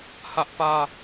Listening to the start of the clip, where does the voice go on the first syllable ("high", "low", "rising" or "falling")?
high